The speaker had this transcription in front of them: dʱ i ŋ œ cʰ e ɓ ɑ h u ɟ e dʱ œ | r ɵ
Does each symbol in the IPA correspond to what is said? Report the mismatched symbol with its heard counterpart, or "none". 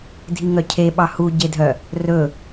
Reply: none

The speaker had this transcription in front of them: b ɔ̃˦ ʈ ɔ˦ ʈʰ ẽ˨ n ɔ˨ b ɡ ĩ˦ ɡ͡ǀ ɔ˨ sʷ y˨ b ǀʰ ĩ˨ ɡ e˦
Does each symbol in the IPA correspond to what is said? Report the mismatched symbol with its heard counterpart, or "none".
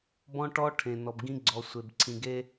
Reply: y˨ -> e˨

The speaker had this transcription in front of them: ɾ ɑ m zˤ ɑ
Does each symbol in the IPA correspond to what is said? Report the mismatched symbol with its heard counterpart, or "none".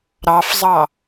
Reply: m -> f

